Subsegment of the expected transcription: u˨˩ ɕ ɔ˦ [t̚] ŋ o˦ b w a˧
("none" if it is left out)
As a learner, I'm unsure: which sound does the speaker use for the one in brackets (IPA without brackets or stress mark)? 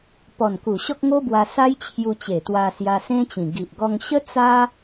k̚